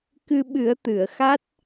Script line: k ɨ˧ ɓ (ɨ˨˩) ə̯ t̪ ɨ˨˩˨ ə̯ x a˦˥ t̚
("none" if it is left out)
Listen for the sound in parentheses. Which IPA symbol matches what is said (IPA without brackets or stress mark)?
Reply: ɨ˨˩˦